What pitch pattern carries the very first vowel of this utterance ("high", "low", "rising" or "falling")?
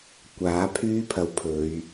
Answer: rising